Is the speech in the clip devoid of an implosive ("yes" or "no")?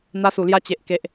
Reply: yes